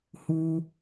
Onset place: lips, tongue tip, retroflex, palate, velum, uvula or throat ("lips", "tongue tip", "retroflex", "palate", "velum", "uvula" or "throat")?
throat